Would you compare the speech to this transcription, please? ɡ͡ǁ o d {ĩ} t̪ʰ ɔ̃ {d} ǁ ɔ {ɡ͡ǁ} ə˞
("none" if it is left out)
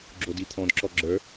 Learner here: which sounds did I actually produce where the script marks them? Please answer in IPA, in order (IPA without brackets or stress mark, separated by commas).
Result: i, d, ɡ͡ǁ